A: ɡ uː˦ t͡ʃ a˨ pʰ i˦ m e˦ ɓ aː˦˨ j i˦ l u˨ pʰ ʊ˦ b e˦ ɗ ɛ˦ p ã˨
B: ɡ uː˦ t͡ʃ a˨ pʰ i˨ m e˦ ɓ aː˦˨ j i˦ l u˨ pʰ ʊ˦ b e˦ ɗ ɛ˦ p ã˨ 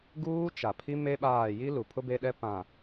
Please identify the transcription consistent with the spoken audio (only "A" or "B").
A